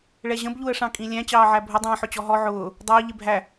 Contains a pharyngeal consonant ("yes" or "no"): yes